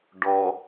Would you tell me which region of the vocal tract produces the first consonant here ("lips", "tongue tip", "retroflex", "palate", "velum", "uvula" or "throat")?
retroflex